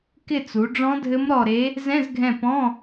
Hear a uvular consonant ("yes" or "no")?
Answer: no